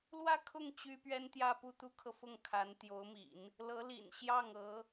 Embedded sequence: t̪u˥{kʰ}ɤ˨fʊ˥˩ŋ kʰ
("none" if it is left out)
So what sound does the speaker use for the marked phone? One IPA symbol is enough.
kʰ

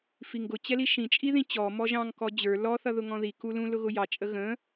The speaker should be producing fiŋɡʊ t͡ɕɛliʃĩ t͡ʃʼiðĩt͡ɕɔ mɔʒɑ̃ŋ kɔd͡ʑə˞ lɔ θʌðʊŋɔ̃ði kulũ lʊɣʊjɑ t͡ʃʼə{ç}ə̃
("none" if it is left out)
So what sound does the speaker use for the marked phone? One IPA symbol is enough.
ɣ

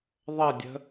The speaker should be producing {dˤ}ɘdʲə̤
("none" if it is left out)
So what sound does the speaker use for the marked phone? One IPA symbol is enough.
ðˤ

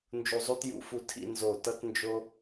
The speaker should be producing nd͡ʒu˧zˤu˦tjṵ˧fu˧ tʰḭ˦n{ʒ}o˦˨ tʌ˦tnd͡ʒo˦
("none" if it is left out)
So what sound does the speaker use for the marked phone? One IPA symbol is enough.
z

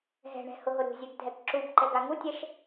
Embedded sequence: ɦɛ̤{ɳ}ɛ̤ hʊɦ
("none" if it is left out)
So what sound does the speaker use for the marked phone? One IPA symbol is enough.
ɳ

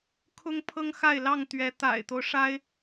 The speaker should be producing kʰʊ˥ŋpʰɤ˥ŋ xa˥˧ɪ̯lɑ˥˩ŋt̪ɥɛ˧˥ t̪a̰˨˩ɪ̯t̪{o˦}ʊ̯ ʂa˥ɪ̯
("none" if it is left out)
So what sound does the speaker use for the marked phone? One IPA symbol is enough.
o˦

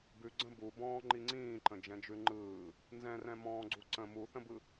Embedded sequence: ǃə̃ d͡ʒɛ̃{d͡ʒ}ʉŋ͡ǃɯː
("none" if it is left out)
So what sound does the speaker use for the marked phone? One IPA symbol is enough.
d͡ʒ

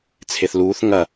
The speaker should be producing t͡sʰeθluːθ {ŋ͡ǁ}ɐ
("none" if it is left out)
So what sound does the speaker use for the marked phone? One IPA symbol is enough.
ŋ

